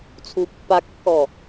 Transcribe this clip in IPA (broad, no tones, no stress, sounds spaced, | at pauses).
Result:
t͡sʰ u pː a kː ɔ